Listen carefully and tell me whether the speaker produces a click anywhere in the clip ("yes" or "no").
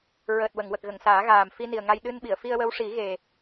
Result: no